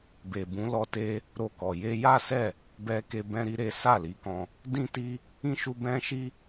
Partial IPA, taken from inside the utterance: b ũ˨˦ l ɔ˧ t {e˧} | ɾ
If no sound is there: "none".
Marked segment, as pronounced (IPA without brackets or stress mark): e˧